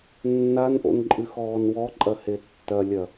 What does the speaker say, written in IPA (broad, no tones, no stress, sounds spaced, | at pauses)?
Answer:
nː a n ʔ o̰ n ǃʼ ɨ x ɔː n w ɔ ǃʼ ɐ h e tː ɐ lʲ ɐ